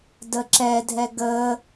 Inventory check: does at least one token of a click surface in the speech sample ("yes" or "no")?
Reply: yes